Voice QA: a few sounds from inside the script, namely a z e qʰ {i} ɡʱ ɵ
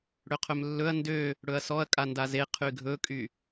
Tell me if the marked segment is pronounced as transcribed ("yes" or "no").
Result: no